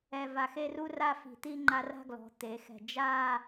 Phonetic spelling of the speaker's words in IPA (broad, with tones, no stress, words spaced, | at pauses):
ɛ˧va˧xe˥˧ru˥ ra˥˧fi̤˧˩ t̪i˥˧ŋ͡ǃa˧ra̤˥˧ɡlɔ̤˩˧ t̪e˩˧xɛ̤˧˩ d͡ʒa˥˧